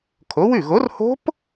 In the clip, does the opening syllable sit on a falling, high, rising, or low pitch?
rising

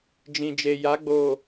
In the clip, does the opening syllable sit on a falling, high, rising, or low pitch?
low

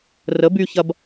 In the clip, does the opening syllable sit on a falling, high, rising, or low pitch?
rising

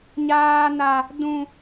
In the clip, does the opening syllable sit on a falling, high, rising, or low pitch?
high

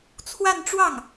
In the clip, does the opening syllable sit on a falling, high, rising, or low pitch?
falling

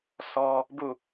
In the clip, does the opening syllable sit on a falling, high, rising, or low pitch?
high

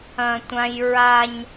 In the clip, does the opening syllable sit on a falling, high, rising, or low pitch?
high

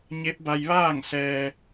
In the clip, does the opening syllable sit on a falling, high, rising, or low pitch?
rising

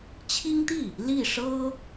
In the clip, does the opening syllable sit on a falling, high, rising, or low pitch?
high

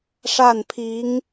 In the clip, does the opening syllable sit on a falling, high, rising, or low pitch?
falling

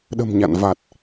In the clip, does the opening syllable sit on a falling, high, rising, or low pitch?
low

